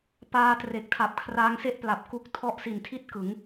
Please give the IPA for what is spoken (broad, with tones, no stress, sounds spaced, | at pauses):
p aː˧ t r e˨˩ k̚ tʰ a˨˩ p̚ kʰ r a˦˥ ŋ s e˥˩ ʔ p l a˨˩ p̚ k u˦˥ k̚ tʰ ɔ˦˥ ʔ s i˨˩ n tʰ i˥˩ t̚ k ɯ˩˦ ŋ